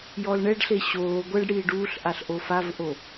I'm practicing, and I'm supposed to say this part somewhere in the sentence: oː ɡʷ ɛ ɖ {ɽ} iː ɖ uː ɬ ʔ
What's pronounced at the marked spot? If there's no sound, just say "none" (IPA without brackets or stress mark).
ɽ